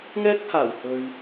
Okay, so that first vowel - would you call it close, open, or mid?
mid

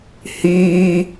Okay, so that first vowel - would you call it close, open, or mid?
close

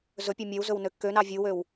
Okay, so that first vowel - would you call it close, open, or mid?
mid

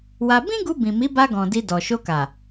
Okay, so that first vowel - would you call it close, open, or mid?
open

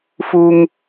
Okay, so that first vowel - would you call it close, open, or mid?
close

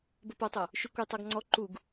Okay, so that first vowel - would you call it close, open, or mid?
mid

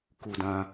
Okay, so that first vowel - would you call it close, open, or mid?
close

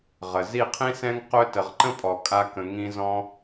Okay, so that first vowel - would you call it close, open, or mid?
mid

